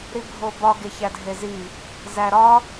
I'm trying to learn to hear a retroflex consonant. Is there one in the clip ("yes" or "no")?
no